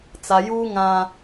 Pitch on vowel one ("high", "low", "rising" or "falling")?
low